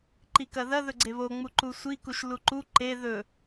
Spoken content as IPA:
ǃ i k ɐ ð ɐ ð ɵ ɡ͡ǀ e β o ŋ͡m u ǃ u sʷ i k u ʃ l u ǃ u ǃ e ð ɵ

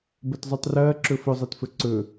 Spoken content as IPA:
b ɐ t zˤ u tˤ r ɐː ǁ ɵ f ɵ zˤ ɐ t f ɵ ǀ ɵ

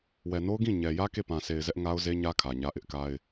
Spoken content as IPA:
w ɛ˨ n o˦ ʊ̯ ɡ ĩ˦˨ ɲ ɛ˨ j ä˦ k e˦˨ p ã˨ s e˨ ɪ̯ z ɛ˦ ʔ ŋ a˦ ʊ̯ z e˦ ɲ ä˦ kʰ ä˨ ɲ ä˦ ʔ ɪ˦ ʔ k a˦ ɪ̯

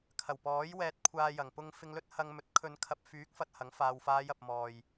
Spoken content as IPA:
kʰ ɐ˨˩ w p ɔː˨˥ j w ɛː˧ t̚ kʷʰ aː˧ j ɐ˨˩ ŋ p ʊ˧ ŋ f ɪ˧ ŋ l ɵ˥ t̚ h ɐ˧ ŋ m ɵ˨˥ t̚ kʰ ɵ˨˧ n kʰ ɐ˨ p̚ f yː˨˥ k̚ f ɐ˧ t̚ h ɐ˨˥ ŋ f aː˧ w f aː˨˧ j ɐ˨ p̚ m ɔː˨ j

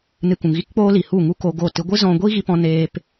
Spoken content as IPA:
n ɨ˧ k ũ˨ ŋ ɣ i˦ k k͡p oː˦ l i˨ h u˦˨ ŋ u˦ k o˧ ɡ o˦˨ t ɨ˧ ɡʷ ɨ˦ z ɔ̃˧ ɡʷ i˦ ɣ i˧ p ɔ̃˧ n eː˧ p

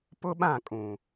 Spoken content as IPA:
p ʊ˦ ɓ ã˦˨ kʼ ũ˨

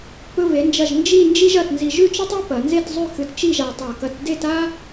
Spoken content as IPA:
p ɵ˧ v e˩˧ n d͡ʒ ɐ˧˩ ʒ n d͡ʒ i˥˧ n d͡ʒ i˥ ʒ ɐ˧ t n z i˧ ʒ ʉ˥˧ t͡ʃ ɵ˥ tˤ ʉ˥ p ɐ˩˧ n z e˥˧ t zˤ ʉ˥˧ x ɨ˧ t t͡ʃ i˥˧ ʒ a˧ tˤ a˧˩ k ɐ˧ t d e˥˧ t a˥

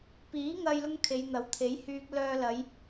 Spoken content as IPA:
p iː˨˥ ŋ ɐ˧ j l ʊ˥ ŋ kʰ e˨˧ j n̪ ɐ˨˥ w t̪ʰ e˨˥ j h yː˧ k̚ l œː˧ l ɐ˨˧ j

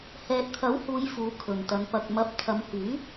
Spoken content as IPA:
h ɛː˨ t̚ t̪ʰ ɐ˨˥ w h uː˨˧ j f uː˨˥ kʰ ɵ˨ n t̪ ɐ˨˧ n p ɐ˨ k̚ m ɐ˨˥ p̚ t̪ʰ ɐ˨˧ m h yː˨˥

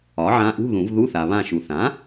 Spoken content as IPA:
ɒ˩˥ ʕ ã˧˥ ʔ ṳ˧˥˧ ð ũ˨˩˦ v ð u˧˥˧ θ a˨ β ã˦˨ ʃ u˨ θ ã˩˥

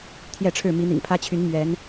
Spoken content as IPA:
t̪ʰ j ɛ˥˨ ʈ͡ʂʰ ɻ̩˥˨ m i˨˦ n̪ ḭ˨˩ ŋ pʰ ä˦ t͡ɕʰ y˨˦ n m ɥ ɛ˨˦ n

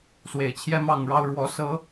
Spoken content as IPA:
s w e˨˩ ɪ̯ t͡ɕʰ j ɛ˦ m ɑ˥˨ ŋ ɻ ɑ˦ ʊ̯ ɻ w ɔ˨˦ s ɤ˨˦

